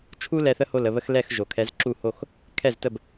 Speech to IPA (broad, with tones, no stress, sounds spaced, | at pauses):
t͡ʃʰ u˥ l ɛ˧ θ ə˥ h o˥˩ l ə˥˩ β ə˥ x l ɛ˥˩ x ʒ o˩ kʰ ɛ˩˥ z ǁ u˥˩ h o˥˩ x | kʰ ɛ˥˩ z t ə˥˩ b